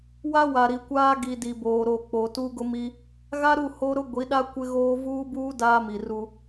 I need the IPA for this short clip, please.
w a˦ w a˨ ɾ i˨ kʷ aː˦ ɡ i˨ d i˨ b oː˨ ɾ o˦˨ k͡p o˨ t u˦ ɡ ʊ˦ m i˦ | ɣ a˦ ɾ u˦˨ h o˦ ɾ ʊ˦ ɡʷ i˨˦ ɗ a˦ kʷ ɪ˦ ɣ oː˦ v uː˦ b uː˦ d aː˦ m i˨ r u˦

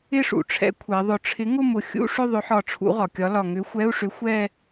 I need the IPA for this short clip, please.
ɪ˥˧ ʂ ṵ˩ ʈ͡ʂʰ ɛ̰˨˥ kʷʰ ɛ˩˧ ðˤ ʊ˧˩ ʈ͡ʂʰ ɪ˨˥ ŋ ʊ˥˧ m ʊ˨˥ xʲ ṵ˧˥˧ ʂ ʏ˥˧ ðˤ ʏ˨˥ ħ ɒ˧˩ ʈ͡ʂʰ ṵ˨˥ ʁ ɒ˩ kʲ ɒ˨˥ l ɒ˧˩ ŋ ʏ˨˥ xʷ ɛ˧˥˧ u̯ ʂ ʏ˨˥ xʷ ɛ˥˧

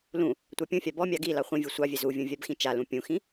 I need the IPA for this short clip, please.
l ũ | tʷ ɑ pʲ ũ fʲ ɑ b ɔ mʲ ɑ ɡ i l ɑ χʷ ĩ vʲ u sʷ ɑ vʲ ɛ z u vʲ ũ vʲ a b x ĩ t͡ʃ a l ũ pʲ ũ x ĩ

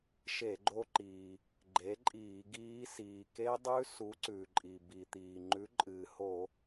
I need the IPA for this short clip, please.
ʃ e˧˩˧ ɡ͡ǃ o˦˥ ǃ iː˩ | ɡ͡ǃ e˨˥ ǃʼ iː˧˩˧ ɡ iː˦˥ s iː˩ k e˦˥ dˤ ʉ˦˥ s u˨˥ ǀ ʉ˩ ǃʼ i˩ b i˩ t̪ iː˩ ŋ͡ǃ ʉ˨˥ ǃʼ ɨː˩ h o˧˩˧

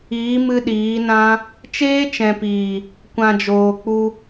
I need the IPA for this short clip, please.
iː˨˦ m ɨ˧ ɗ iː˨˦ n ã˦ | t͡ʃ eː˦ t͡ʃ ɛ̃˨ p iː˨ | kʷ ã˨ d͡ʒ oː˨ k͡p u˧

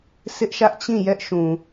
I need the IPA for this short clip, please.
s ɪ˦ ʔ ʃ ä˦ ʔ t͡ɕ ĩ˦˨ j ɛ˦ ʔ ʃ ũ˨

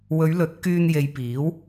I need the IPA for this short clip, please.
w ɵ˨˧ ɥ l ɵ˨˥ t̚ k yː˧ n j e˨˧ j p iː˨˥ w

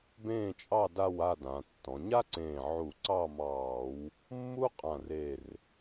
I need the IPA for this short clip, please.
b ẽː˥˨ t͡ʃʼ ɑ˥˨ d a˥˨ w a˥˨ d ã˩˧ tː ɔ̃˩˧ ɲ a˥ ǀ ẽː˧˩ ʕ u˧˩˧ ǀ ɑ˥˨ m ɑː˧˩˧ w | mː u˥ qʼ ã˧˩ r e˧˩ r

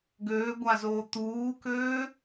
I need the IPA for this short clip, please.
ɡ øː ɡʷ a z oː t̪ uː k øː

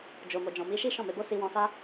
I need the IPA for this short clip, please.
d͡ʒ o˨ m o˨ d͡ʒ ɔ̃˨ m i˨˦ ʃ i˦ ʃ ɔ̃˦˨ m e˧ b o˦ s i˧ w ɔ̃˧ s a˦

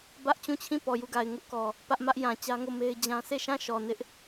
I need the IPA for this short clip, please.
b ä˦ ʔ t͡ɕ ũ˦˨ t͡ɕʰ ĩ˦˨ p ɔ˨ j u˦˨ ɡ a˨ ɪ̯ ŋ ʊ˦ ʔ k ɔ˨ | p ä˦ ʔ m ä˦ ʔ j ã˨ t͡ɕ ä˦ ŋ o˦˨ m e˦ ɪ̯ d͡ʑ ã˦ sʰ e˦˨ ʃ ã˦˨ ʃ ɔ˨ n ɪ˦ ʔ

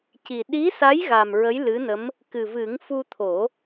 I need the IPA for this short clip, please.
c i˨˩ ɗ i˧˥ s a˧˥ j ɣ a˨˩ m ɹ ə˧˥ j l ɨ˧˥ n ə˧˥ m | k ɨ˨˩ v ɨ˨˩˦ ŋ f u˧ t̪ʰ o˨˩˦

